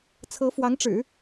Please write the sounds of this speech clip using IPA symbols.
t͡sʰ ɤ˧˥ f w ɑ˧˥ ŋ ʈ͡ʂ ɻ̩˨˩˦

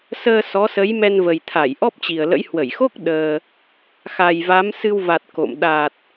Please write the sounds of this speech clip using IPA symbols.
s əː˧ s ɔ˨˦ s ə˨˦ j m ɛ˧ n v ə˨˩ j t̪ʰ a˧˩ j ʔ ɔ˦˥ p̚ t͡ɕ i˨˩ ə̯ l ə̰˧˥ j h w ə˧˩ j x o˦˥ k̚ ɗ əː˧ | x a˨˩ j v a˨˦ m s ɨ˧ w v a˨˩ t̚ k o̰˧˨ m ɗ a˨˩ t̚

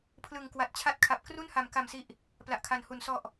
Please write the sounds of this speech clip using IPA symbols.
pʰ l ɯ˨˩ ŋ k w a˨˩ t̚ t͡ɕʰ a˦˥ t̚ kʰ a˨˩ p̚ k r u˥˩ n h a˨˩ m k a˨˩ m s i˨˩ ʔ | p l a˨˩ ʔ kʰ a˨˩ n h u˨˩ n s ɔ˨˩ ʔ

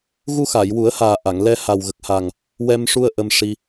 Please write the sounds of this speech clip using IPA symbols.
ɣ u˧ x a˨˩˨ j w u˨˩˦ ə̯ h aː˨˩ ʔ a˨˩˨ ŋ l ɛ˧ h a˨˩ w ɣ ə˨˩ k̚ h a˨˩ ŋ | w ɛ˧ m ʂ u˧ ə̯ ʔ ə˧ m ʂ i˧

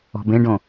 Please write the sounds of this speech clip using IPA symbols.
ɔ̤ b ẽ ɖ õ

